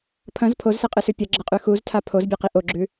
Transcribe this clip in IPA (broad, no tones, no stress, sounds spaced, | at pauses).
pʰ ɐ̃ z pʰ o z s e qʼ ɨ s ʉ pʲ ɐ ɡ͡ǁ ɐ qʼ ʉ x u z tʰ a pʰ o z bʲ e q i ʔ o ɡ͡ǁ ʉ